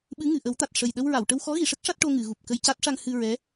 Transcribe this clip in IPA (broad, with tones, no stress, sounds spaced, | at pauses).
ɓ ɨ˧˥ ŋ ɨ˨˩˨ ʔ ə˨˩˦ w t̪ a˨˩ t̚ ʂ ə˨˩ j ɗ ə˧ w ɹ a˨˩˨ w ʈ ə˧ w x ɔ˧˥ ɣ i˨˩˨ ʂ ə˦˥ k̚ ʂ a˦˥ t̚ ʈ o˧ ŋ ɨ˨˩˨ ɣ u˨˩ p̚ k ə˧ j c a˦˥ t̚ ʂ a˧ ŋ h ɨ˧ ɹ ɛ˧˥